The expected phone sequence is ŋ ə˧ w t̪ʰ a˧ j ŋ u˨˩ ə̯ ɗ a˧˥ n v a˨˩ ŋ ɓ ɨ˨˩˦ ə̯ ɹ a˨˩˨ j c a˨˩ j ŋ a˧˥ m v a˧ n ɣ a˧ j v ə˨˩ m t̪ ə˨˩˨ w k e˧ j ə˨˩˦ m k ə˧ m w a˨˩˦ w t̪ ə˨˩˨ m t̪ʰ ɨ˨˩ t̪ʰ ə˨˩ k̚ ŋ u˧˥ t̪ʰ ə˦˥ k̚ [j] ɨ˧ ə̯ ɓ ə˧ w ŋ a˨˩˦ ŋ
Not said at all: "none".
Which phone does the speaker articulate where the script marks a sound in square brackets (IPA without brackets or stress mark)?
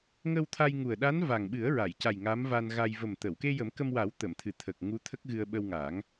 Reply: ɣ